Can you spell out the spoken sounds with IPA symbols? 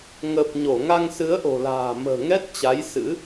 ŋ əː˨˩ p̚ ɲ o˧˩ ŋ a˧ ŋ s ɨ˨˦ ə̯ ʔ o̤˨˩ l a̤ː˨˩ m ə̤ː˨˩ ŋ ɛ˦˥ t̚ t͡ɕ a˨˦ j s ɨ̰˧˥

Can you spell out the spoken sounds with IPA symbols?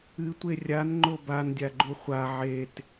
ɨ tʷ e rʲ a n ŋ͡ǃ o b a n dʲ a ɡ͡ǃ u χʷ a ʕ e t

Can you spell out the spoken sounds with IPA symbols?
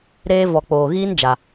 ɾ eː˦ v ɔ˨ k͡p oː˨ ɣ iː˦ n d͡ʒ a˦

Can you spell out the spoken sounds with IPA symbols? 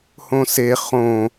h õ s e χ õ

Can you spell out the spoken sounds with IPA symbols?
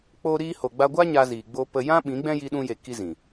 k͡p o˦ ɾ iː˧ h o˨ ɡ͡b a˧ ɡʷ a˦ ɲ a˧ z iː˨ ɡ͡b o˧ p ə˧ j ã˦ ɓ ĩ˨˦ ɡ͡b ɛ̃˦ j i˧ ɗ ũ˧ j e˨ k i˦ z ĩ˨

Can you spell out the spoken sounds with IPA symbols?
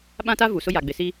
ɓ ã˦ t a˦ v u˨ s ʊ˦ j a˨ ɡ͡b ɪ˨ s i˦

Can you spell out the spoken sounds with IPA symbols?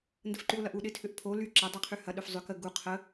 n d ə f ǃ y ʊ̯ l ɐ ʔ u ɗ ɪ tʰ ʏ ʔ pʰ o l y ǁ ɐ dˤ y qʰ y h ɐ ɗ ʏ f zˤ ʏ k ə ɡ u qʰ ə

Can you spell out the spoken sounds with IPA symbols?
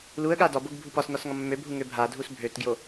l u ə̯ ɠ a d ɒ b o ɡ bʱ u p ɒ s n ɒ s ŋ ɒ mː ø bʱ u ŋ ø bʱ a dʱ u s bʱ ø t ɡ j o

